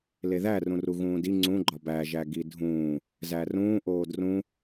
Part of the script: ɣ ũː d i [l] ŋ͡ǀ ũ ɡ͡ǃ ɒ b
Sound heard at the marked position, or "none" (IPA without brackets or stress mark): none